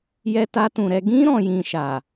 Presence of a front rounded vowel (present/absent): absent